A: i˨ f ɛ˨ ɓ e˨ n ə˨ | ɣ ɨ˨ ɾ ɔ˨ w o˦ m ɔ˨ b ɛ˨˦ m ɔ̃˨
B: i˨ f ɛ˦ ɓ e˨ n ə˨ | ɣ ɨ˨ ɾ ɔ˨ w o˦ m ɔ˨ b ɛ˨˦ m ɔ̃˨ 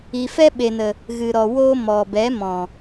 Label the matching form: B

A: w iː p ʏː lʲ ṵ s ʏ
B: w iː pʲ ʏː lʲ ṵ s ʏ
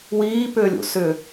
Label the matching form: A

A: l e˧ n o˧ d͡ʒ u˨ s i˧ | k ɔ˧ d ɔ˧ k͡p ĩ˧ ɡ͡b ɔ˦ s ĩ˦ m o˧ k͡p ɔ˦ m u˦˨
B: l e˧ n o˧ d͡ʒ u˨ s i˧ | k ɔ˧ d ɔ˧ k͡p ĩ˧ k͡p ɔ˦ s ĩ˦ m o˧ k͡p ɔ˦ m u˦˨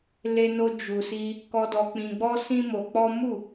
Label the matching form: A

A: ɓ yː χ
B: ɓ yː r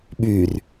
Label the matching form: B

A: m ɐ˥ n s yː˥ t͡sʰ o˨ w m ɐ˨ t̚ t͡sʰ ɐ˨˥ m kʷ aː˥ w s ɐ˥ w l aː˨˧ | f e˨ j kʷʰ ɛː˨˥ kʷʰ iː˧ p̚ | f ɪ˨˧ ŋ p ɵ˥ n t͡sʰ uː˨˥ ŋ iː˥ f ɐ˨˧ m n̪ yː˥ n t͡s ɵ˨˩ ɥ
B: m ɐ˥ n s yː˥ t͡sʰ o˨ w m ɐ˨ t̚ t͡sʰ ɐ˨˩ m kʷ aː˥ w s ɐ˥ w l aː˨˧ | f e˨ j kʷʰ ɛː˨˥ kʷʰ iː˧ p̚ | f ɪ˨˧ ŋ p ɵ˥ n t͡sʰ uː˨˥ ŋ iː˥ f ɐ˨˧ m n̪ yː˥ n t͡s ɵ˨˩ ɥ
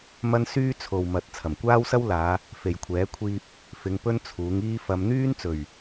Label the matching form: B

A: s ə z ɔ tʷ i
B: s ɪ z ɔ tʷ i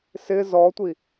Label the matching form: B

